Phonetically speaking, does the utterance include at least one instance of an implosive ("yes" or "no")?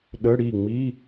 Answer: yes